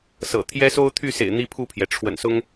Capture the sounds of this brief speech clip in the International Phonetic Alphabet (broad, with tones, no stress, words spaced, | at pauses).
sɤ̰˨˩ t̪ʰjɛ˦so˦ʊ̯t̪ʰy˥˨sḛ˨˩ɪ̯ n̪i˦pʰu˥˨pʰjɛ˩ ʈ͡ʂʰwə̰˨˩nsʊ˦ŋ